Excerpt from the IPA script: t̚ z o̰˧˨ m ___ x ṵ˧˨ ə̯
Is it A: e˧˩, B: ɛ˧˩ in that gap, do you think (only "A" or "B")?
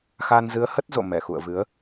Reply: B